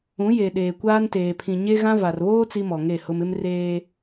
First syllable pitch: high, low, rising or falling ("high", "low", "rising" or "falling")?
rising